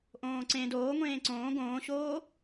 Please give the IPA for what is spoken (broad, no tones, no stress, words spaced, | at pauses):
ʔõːǀẽ doːŋʷẽː ǀõː ɡõːɕoː